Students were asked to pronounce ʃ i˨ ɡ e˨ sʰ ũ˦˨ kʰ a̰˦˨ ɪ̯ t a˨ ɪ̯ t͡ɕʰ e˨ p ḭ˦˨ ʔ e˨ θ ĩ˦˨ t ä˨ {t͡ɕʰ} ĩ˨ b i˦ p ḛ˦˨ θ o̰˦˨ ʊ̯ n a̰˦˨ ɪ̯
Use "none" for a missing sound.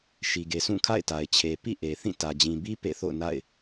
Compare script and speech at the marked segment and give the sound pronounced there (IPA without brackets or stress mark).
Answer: d͡ʑ